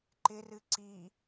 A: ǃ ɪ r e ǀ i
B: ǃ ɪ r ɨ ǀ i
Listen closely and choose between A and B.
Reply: B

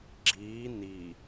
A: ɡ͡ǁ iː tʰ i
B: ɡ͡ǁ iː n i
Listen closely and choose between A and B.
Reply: B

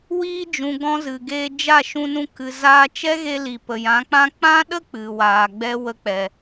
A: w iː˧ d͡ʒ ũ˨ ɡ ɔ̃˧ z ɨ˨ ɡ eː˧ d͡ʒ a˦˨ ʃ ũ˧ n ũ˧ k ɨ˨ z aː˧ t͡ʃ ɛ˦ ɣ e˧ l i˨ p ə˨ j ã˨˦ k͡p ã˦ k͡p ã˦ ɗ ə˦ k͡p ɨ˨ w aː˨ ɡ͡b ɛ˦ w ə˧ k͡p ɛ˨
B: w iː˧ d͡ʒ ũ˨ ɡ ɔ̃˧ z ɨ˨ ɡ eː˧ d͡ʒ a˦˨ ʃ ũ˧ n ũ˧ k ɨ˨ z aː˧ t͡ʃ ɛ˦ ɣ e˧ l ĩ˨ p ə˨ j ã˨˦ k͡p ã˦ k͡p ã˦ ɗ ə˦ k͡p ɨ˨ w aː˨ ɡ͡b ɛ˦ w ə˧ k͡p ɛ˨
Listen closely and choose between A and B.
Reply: A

